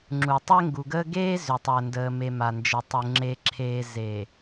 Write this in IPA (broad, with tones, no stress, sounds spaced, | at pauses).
ŋ͡ǁ u˨ tˤ e˦ ŋ ɡ u˨ ɡ əː˦ ɡ eː˦ z ʏ˨ tˤ əː˨ n d əː˨ m e˨ m a˨ n d͡ʒ ə˨ tˤ u˨ ŋ͡ǁ e˨ ǁʰ eː˨ z e˨